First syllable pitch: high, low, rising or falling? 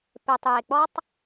low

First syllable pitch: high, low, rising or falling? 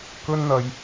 high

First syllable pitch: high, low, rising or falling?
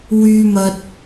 low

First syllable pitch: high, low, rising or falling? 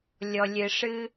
low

